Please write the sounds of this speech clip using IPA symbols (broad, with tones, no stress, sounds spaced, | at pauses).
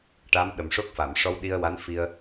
ʈ a˧˥ m ɗ ə˨˩ m ʂ o˦˥ k̚ f a˨˩˨ m ʂ ɔ˧ w ɗ i˧ ə̯ w a˧˥ n f i˧ ə̯